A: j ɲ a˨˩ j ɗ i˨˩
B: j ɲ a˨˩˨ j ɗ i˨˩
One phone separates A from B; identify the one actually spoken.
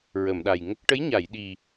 B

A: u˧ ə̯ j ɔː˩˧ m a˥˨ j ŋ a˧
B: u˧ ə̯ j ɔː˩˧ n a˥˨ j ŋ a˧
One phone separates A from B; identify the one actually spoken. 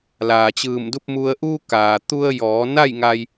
B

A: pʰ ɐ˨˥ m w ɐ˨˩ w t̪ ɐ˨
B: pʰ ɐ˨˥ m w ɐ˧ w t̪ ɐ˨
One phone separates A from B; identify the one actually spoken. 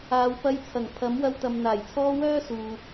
B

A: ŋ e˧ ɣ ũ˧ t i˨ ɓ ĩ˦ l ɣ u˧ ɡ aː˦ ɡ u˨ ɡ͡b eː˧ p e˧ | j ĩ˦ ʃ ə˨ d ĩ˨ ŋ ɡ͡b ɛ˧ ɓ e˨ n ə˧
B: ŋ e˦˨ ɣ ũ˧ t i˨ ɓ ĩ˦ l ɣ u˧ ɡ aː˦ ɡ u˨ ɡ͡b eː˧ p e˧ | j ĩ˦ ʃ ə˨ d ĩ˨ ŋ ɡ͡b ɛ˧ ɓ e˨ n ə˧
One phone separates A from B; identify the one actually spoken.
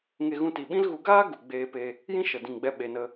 A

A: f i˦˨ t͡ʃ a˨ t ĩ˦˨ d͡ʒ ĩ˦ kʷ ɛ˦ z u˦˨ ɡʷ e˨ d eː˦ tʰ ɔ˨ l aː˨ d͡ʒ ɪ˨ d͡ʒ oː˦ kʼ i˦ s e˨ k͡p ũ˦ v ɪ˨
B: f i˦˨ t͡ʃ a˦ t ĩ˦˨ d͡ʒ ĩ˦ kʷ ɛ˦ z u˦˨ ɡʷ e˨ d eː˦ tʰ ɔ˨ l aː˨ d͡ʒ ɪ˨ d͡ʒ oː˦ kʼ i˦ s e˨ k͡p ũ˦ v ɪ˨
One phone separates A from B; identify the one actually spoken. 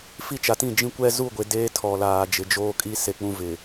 A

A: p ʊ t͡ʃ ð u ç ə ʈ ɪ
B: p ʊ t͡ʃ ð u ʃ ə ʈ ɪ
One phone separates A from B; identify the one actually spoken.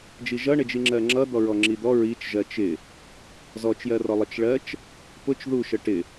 B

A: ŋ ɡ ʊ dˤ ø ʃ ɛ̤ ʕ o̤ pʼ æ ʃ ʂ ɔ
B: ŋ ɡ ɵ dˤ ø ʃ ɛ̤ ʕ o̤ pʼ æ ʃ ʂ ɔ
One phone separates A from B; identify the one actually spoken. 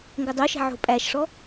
B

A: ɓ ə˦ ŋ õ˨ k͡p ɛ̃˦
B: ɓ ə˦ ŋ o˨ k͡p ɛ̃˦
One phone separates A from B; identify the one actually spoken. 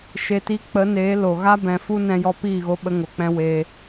B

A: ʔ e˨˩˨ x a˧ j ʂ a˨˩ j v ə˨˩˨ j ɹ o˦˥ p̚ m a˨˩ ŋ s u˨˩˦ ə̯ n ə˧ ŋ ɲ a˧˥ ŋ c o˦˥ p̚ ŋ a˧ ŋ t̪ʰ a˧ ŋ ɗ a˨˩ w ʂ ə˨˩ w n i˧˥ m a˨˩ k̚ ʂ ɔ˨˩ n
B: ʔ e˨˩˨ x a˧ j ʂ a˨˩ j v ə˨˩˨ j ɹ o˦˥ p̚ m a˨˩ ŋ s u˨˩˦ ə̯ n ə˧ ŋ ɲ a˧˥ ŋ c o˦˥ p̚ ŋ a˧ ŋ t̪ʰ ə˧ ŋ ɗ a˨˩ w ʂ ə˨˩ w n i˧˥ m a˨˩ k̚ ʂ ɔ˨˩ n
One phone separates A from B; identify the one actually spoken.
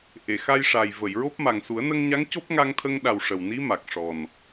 B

